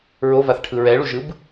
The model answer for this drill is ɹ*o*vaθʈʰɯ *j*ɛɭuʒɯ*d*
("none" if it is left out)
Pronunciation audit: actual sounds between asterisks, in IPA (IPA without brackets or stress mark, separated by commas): o, ɹ, b